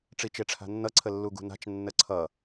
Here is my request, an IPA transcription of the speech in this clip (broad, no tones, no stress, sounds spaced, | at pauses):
ʈ͡ʂ i t͡ʃ e ʈ͡ʂʰ a̤ nː ʌ ǀʰ ə lː u ɡ ṳ n a̤ t͡ʃ nː ə ǀʰ ʌ